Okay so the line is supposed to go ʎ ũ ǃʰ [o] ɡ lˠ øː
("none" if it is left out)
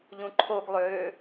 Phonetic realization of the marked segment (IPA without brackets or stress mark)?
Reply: o